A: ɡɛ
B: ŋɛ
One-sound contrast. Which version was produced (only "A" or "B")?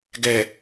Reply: A